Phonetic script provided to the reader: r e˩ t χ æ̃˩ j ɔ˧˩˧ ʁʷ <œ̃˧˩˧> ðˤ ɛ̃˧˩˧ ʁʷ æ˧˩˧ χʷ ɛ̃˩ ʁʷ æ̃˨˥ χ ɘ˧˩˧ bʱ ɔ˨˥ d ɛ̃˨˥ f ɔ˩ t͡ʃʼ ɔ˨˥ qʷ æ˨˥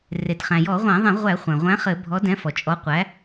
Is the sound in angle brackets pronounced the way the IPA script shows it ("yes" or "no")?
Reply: no